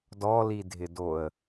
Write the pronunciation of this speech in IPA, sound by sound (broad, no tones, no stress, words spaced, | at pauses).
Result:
dɔlidʱɪdoə̯